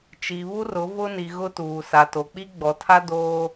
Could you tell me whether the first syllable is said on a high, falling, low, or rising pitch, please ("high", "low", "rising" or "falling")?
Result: low